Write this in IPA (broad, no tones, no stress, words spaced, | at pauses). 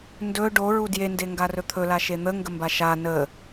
ndɵ ɖoɹu djendeŋɡarɵ t̪ʰɵlaʃe n̪əŋɡəmba ʃa nə